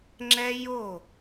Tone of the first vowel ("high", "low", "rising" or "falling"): high